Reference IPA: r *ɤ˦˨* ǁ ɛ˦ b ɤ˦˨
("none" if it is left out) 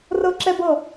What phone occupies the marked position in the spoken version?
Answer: ɤ˦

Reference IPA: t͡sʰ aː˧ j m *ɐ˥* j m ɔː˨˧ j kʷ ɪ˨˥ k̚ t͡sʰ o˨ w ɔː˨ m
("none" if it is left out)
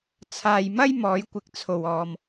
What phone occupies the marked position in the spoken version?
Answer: ɐ˥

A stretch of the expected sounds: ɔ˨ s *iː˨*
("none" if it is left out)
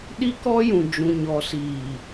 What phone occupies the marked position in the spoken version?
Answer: iː˨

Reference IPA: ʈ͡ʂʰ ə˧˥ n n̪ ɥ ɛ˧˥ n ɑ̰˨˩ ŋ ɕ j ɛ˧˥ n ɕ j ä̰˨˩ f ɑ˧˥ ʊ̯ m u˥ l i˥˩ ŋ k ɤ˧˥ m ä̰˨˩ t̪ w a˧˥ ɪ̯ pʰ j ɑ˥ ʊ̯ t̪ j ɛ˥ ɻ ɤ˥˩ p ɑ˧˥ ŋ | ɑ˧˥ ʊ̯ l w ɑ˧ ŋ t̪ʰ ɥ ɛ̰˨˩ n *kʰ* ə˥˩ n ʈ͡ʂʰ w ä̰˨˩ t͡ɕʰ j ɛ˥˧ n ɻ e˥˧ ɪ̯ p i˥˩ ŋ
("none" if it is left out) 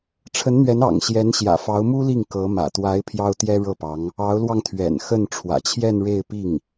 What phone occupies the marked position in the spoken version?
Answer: x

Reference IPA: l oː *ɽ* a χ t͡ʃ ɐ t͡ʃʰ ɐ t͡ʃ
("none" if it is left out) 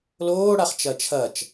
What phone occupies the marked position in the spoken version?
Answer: ɽ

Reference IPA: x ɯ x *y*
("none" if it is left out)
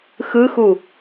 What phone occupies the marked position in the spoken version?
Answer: u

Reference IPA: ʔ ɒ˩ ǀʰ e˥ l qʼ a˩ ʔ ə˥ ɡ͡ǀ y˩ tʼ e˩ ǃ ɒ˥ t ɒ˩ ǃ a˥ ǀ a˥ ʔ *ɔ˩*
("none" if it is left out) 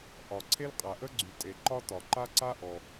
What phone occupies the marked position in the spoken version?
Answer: ɔ˩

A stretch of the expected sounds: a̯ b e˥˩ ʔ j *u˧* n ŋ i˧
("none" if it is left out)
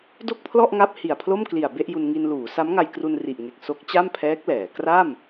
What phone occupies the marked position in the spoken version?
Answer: u˧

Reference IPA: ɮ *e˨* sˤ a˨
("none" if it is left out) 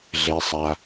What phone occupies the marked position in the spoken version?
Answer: e˨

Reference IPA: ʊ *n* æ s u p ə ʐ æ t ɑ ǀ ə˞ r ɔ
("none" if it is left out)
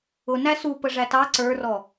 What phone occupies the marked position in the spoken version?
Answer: n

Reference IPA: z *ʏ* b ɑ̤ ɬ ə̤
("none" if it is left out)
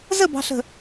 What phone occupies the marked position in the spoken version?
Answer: ə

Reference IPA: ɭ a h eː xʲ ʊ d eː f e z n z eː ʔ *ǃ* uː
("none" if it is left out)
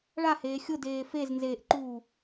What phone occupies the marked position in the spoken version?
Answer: ǃ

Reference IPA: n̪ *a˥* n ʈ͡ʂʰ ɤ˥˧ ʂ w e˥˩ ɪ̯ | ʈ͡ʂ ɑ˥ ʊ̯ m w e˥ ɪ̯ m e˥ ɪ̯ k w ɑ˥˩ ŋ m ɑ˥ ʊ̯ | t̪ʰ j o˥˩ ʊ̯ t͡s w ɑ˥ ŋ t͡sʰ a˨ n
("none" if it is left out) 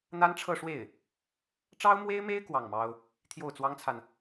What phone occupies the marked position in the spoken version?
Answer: a˥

